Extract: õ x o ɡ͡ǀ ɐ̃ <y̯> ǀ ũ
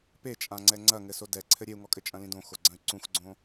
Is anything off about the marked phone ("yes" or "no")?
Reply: no